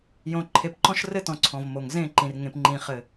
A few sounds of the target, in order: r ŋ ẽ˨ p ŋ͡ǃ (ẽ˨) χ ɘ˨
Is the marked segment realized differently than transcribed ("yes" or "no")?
yes